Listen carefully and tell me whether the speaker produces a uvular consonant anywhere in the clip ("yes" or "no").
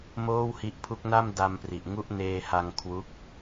no